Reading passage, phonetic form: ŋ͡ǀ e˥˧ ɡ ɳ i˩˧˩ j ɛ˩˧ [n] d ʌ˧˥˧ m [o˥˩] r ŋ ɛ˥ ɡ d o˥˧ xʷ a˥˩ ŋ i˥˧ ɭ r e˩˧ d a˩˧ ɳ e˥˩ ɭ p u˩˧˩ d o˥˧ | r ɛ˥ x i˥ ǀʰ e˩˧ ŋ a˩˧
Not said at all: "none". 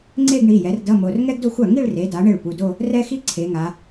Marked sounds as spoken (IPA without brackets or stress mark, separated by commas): r, o˩˧˩